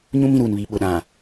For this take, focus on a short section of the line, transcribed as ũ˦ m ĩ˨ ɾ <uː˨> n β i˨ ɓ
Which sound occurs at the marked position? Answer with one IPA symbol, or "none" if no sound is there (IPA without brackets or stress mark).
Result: uː˨